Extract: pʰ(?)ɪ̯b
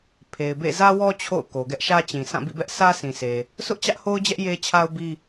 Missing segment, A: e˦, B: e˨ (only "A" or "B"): B